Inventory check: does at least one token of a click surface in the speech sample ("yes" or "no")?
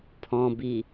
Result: no